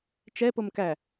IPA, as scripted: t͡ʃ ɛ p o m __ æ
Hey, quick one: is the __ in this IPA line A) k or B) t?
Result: A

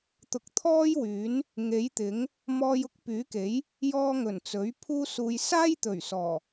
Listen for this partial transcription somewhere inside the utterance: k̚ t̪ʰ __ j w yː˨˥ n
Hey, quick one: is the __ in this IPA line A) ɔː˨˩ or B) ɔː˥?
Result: B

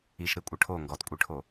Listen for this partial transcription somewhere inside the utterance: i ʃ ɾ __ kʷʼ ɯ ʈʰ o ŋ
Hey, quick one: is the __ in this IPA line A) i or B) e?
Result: B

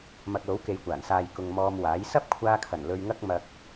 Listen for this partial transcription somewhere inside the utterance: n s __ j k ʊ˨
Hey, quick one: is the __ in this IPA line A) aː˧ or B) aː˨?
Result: B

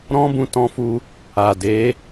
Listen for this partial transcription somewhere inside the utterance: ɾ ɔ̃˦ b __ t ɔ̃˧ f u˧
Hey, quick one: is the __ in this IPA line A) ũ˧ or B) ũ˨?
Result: A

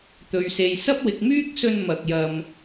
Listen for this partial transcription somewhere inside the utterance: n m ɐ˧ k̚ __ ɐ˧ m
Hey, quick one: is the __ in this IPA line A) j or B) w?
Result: A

